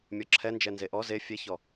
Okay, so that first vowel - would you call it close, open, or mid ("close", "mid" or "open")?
mid